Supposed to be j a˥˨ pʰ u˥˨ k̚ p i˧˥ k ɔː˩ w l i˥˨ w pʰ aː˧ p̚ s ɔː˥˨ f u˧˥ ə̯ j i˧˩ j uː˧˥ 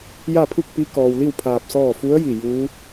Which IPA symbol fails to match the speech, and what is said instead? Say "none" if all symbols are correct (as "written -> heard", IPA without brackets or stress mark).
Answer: none